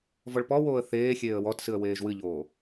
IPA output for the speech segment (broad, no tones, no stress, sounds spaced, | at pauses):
v ɔ ɭ p ɔ w oː ə̯ θ eː xʲ eː ə̯ w ɔ t s ɨ ə̯ w eː ʒ w ɨ ʎ oː